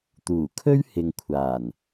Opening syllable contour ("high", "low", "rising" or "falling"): low